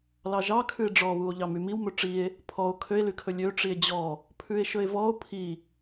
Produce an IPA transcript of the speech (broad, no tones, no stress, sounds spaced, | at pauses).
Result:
l ɑ ʒ ɑ kʰ ʉ e̯ ɖ͡ʐ ɔ β u o̯ ʎ ɑ m y m i w m ɵ ʈ͡ʂ i e̯ | pʰ ɔ o̯ kʰ ø e̯ l y kʰ ɵ lʲ ø ʈ͡ʂ i e̯ d͡ʑ ɔ | pʰ ʉ e̯ ʃ ɵ e̯ v ɔ o̯ pʰ i